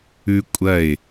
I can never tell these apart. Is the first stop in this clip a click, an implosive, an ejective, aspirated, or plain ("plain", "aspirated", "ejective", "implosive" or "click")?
ejective